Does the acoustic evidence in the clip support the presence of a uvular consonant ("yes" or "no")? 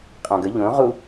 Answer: yes